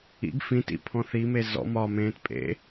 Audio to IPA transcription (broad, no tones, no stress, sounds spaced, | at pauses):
ḭ ɡ f ĩ t ḭ pʰ ɔ̃ θ i m e z ɔ̰ m ɒ m ẽː t pʼ ḛ